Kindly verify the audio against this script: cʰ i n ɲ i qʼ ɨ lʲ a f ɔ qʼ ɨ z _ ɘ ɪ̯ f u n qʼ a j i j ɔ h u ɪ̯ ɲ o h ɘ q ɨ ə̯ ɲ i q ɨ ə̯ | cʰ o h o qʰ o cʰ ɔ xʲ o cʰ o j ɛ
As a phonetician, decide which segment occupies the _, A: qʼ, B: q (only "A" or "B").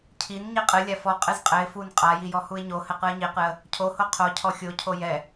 A